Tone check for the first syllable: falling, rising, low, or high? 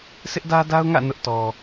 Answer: high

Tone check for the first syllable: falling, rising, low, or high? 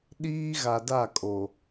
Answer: high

